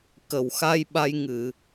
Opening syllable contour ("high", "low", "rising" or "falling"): low